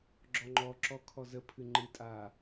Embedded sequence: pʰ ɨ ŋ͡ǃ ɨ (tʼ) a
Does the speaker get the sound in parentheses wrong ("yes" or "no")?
no